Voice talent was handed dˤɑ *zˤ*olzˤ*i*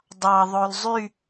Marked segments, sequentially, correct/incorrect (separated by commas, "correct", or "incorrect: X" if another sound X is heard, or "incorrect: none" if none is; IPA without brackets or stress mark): incorrect: ðˤ, incorrect: y